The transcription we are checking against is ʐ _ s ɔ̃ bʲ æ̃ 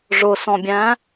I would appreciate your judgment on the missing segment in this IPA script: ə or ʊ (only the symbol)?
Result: ʊ